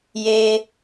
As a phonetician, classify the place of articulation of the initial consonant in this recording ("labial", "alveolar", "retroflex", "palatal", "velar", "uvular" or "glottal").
palatal